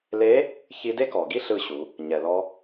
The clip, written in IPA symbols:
le˧˥ | çi˧de˥kɔ˩ɡi˥ ɬɯ˧ɕu˩˧ | ɲɛ˩lɔ˧

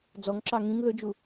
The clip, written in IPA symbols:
d͡zɔŋǁɑ ŋĩŋ ðɵd͡ʒu

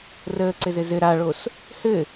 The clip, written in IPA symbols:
rəːǀɘz ɘzɘ ɾaɭos | hɘ

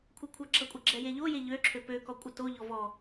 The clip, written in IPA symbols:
kʷʰɘkʷʰaɡ͡ǁʌkʷʼɘ ɡ͡ǁɛjeʎoje ʎø ǁʰøpøkɔ kʷʼʌtoʎɔ vɔ

